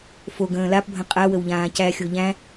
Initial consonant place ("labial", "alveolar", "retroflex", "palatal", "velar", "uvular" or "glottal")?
labial